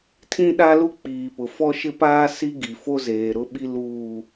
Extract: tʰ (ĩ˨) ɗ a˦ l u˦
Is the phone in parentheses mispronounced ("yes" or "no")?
yes